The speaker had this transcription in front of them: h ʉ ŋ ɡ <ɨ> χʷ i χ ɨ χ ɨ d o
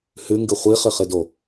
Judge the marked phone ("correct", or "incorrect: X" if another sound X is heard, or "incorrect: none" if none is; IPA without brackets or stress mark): correct